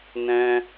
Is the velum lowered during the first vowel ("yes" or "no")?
yes